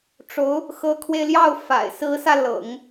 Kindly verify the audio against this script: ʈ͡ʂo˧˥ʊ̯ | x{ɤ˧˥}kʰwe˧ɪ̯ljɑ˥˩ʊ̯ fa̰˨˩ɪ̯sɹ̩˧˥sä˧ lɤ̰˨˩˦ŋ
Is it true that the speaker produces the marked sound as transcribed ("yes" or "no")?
yes